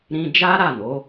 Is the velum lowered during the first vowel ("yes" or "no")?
yes